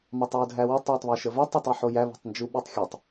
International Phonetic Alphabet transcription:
m ɑ tˤ w ʊ dʱ æ w ʊ tˤ w ʊ tˤ β æ ʃ ə v ɜ tˤ e tˤ i ħ o j æ β o̤ tˤ n d͡ʒ u ɓ i tˤ xʲ ɛ tˤ

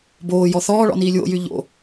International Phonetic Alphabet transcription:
b oː j ɔ θ ɔː ɭ ɔ̰ n iː lʲ w o̰ j y ʎ o̰

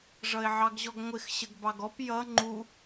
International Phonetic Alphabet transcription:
ʐ ʌ ɪ̯ ʕ ɑ ɡ ʑ ɔ ɡ ŋʷ ɪ x ɕ ə ɡ b ɑ ɡ ɔ p j ʌ ŋ͡ǃ u

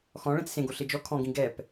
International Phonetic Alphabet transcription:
x ɔ̃ ɭ ɛ̃ t͡s s ẽ ɡ o ɬ e d͡ʒ ɔ kʰ ɔ̃ ɡ ĩ ɡ ɛ p

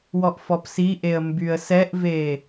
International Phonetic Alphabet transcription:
w ɔ ʔ f ɔ p s i ʔ e ə̯ m b y ə̯ s ɛ ʔ v e

